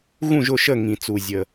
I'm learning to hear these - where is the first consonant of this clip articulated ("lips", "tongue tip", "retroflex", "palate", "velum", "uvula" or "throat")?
velum